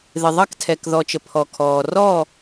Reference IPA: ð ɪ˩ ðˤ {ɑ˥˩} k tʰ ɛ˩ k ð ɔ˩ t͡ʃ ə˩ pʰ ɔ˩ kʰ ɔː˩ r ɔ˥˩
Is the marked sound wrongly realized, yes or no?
no